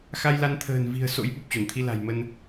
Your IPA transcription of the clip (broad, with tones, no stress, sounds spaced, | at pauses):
x a˧ j l a˧ n t̪ʰ ə̤ː˨˩ n v i̤˨˩ ə̯ s o̰˧˥ j ɓ u˨˩ p̚ t͡ɕ o˧˩ n t̪ʰ i˧ l a̤˨˩ j m ə˧ n